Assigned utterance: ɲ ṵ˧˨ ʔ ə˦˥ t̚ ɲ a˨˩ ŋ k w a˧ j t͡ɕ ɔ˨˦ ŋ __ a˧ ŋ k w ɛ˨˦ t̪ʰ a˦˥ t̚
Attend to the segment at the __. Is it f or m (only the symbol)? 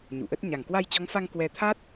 f